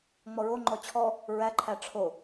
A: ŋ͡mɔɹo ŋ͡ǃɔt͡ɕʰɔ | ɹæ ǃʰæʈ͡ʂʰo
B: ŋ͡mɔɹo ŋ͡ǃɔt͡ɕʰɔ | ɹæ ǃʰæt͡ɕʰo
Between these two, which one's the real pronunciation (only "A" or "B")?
A